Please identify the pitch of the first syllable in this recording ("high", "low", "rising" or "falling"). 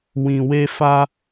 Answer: low